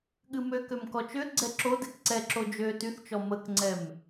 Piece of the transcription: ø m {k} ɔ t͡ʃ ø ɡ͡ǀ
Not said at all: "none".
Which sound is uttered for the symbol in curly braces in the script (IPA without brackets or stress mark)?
k